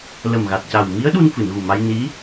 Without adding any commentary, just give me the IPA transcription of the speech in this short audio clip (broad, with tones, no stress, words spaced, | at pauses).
lə˨˩mɣa˨˩t̚ca˨˩w mi˧˥ə̯ ɗu˧nfɨ˨˩˨nɣu˨˩ma˧j ni˧˥